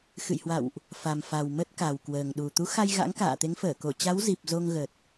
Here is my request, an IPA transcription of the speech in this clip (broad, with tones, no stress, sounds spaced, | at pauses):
x ɨ̰˧˨ j h w a̰˧˨ w ʔ | f a˨˩ m f a˨˩ w m ə˦˥ t̚ k a˨˩ w k w əː˨˩ ŋ ɗ u˨˩ t̪ u˨˦ x a˧ j ɣ a̰˧˥ ŋ k a̰ː˧˨ t̪ e˨˦ ŋ f əː˧˩ k o˧˩ t͡ɕ a˨˦ w z i˨˩ p̚ z o˧ ŋ ɣ ə˨˩ t̚